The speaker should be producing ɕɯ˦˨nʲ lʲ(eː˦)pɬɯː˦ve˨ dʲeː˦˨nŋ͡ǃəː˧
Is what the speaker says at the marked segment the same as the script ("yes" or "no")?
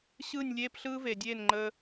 yes